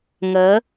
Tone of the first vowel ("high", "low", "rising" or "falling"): rising